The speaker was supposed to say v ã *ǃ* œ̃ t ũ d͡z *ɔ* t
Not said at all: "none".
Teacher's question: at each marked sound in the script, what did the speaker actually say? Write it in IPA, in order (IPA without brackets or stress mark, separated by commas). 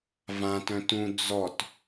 t, ɔ